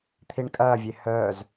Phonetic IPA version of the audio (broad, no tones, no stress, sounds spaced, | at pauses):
t̪ʰ i ɳ kʼ ɐː vʲ e h œː z